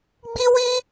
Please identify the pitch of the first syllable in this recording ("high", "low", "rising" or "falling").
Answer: high